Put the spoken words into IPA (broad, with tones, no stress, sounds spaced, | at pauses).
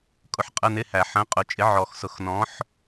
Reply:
kʼ ʊ˧ ħ qʼ ə˧˥˧ n ɪ˧˥˧ h æ˨˩˦ ħ ə̃˨˥ qʼ ʊ˨˩˦ t͡ʃʼ ɪ˨˥ ʕ ɔ˨˩˦ x s ʊ˨˩˦ x n ɔ̃˨˥ ħ